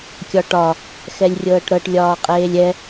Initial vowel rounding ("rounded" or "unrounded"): rounded